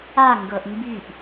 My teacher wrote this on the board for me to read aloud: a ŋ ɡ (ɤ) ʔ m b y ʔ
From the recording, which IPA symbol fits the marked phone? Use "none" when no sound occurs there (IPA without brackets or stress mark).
ɤ